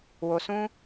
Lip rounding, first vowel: rounded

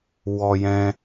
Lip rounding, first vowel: rounded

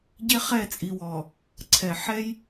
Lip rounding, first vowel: unrounded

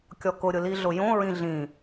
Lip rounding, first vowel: rounded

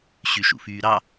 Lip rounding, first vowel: rounded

